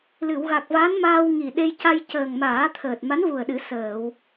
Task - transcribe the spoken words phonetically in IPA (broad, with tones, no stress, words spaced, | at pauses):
lɨ˨˩˨wɣa˨˩k̚va˧˥nmaː˧w ŋi˨˩ ɗe˧jca˧j cəː˨˩ŋmaː˨˩˦ t̪ʰəː˨˩t̚ma˧˥nvu˨˩ə̯ɗɨ˨˩˦ səː˨˩˨w